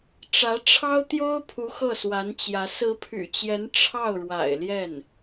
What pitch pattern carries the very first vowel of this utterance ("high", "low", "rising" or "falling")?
rising